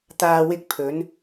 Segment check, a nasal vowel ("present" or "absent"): absent